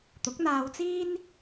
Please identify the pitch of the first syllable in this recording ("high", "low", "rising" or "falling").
rising